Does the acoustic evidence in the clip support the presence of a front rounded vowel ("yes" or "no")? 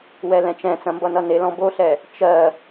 no